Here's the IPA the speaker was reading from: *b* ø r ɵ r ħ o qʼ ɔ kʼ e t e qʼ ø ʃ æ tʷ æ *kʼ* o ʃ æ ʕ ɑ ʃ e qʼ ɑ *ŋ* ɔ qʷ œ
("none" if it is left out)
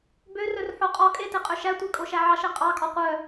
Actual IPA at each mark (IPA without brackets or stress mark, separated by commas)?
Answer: b, kʼ, kʼ